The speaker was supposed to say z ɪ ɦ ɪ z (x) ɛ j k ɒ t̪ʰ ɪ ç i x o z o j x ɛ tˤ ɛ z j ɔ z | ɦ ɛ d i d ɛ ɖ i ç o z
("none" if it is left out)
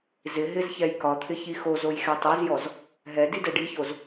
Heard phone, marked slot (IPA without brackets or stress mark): ç